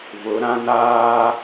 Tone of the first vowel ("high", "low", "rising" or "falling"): rising